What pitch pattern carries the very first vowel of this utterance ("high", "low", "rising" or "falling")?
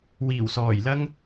low